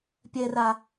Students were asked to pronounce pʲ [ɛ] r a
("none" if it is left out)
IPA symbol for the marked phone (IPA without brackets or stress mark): ɛ